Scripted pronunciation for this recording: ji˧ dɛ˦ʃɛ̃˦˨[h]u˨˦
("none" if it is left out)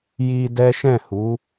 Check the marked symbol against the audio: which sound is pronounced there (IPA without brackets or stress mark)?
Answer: h